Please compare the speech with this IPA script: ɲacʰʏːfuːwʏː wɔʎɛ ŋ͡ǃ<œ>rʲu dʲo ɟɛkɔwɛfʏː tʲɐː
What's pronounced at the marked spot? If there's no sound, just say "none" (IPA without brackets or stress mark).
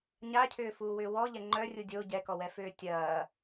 œ